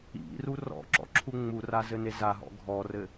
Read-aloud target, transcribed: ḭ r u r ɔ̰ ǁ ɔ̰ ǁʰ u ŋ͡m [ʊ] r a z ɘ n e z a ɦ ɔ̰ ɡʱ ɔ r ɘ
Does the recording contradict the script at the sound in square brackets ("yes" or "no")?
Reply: yes